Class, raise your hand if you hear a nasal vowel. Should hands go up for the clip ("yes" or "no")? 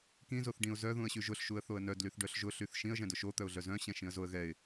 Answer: yes